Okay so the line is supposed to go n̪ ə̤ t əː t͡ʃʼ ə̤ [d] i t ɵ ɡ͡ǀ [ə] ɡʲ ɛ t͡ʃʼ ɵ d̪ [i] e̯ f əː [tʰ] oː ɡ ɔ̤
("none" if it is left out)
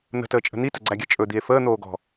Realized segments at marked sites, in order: n̪, æ, i, n̪

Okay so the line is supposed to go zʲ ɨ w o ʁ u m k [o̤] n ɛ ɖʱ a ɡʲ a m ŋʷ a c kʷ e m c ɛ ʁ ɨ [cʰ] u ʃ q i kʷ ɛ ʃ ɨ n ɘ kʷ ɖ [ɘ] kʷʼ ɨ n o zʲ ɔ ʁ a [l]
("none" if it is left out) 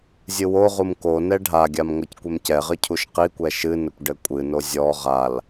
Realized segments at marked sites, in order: o, cʰ, ɘ, l

